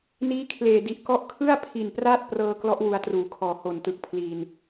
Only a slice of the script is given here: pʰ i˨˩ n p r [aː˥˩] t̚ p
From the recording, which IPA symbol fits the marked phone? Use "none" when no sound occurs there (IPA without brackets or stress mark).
aː˥˩